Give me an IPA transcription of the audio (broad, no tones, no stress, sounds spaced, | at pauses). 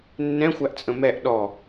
nː ɛ̃ xʷ æ ʔ t͡sʼ ə̃ m ɛ ʔ ɗ ɔ